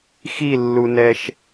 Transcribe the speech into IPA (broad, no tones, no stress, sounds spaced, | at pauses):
x i lː u n ɛ ʃ